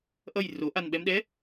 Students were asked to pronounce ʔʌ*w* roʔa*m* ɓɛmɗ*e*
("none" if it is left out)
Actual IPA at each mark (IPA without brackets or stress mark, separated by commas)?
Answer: j, n, ɛ